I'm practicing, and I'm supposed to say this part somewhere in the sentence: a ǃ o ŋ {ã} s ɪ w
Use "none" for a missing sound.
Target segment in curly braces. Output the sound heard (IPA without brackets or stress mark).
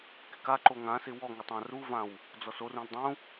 ã